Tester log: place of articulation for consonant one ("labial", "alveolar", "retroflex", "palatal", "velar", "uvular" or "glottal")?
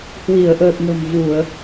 glottal